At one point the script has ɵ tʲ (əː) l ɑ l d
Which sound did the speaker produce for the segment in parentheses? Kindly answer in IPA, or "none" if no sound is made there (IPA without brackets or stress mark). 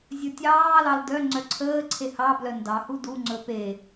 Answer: ɑː